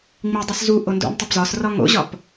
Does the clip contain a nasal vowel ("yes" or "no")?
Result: no